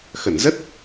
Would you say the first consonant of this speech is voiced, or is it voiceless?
voiceless